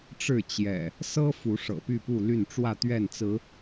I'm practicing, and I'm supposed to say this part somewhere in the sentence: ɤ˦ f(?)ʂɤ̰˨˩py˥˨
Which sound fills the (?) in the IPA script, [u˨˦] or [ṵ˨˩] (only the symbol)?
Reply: u˨˦